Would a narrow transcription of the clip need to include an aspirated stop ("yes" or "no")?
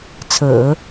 yes